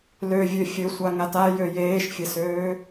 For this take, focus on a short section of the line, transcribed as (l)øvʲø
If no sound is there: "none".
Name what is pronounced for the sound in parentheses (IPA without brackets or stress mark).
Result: l